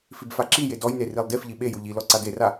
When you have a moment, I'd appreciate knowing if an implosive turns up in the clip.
yes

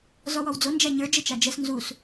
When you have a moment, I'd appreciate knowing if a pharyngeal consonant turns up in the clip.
no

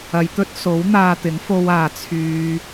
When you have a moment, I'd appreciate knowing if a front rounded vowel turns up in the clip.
yes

